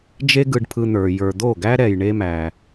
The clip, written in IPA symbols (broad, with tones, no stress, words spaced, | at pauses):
d͡ʒe˦ɡɯ˧ɖpʰɯ˧n̪ə˞˨ jə˞˨d̪o˦˨ɡæ˦ ɾɛ˧jɳe˦mæ˧